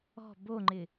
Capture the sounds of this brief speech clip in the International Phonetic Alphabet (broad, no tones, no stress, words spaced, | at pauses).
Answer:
ɔ̤ boŋ͡ǃɪ